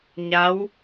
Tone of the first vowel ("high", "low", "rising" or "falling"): rising